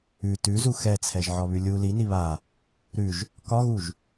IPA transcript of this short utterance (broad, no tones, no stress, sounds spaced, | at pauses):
ʉ t ʉ z u x ɛ t͡sʰ ɛ ʒ ʕ ɒ β ʉ lʲ u l i n i β a | ɾ ʉ ʒ | k ɒ ɣ u ʒ